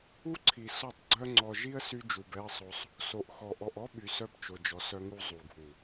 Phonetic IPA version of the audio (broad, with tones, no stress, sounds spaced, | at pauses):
u˦ ǀʰ i˨ s ɔ˦˨ tˤ ɡ͡ǀ œ˦ ŋ͡ǀ ɔ˨ ʒ i˦ ə̯ s y˦ d͡ʒ u˨ b ɛ˦ ə̯ sˤ o˦ sˤ | s o˨ ʔ x ɔ˨ ʔ ɔ˨ ʔ ɔ˦ ɓ y˨ s œ˦ b t͡ʃ o˨ d͡ʒ ɔ˨ s œ˦ ŋ u˦ zˤ u˨ ɡʱ u˨